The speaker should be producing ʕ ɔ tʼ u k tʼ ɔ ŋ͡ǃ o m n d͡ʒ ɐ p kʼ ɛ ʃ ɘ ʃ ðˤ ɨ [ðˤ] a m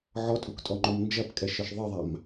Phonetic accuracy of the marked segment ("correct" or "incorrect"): correct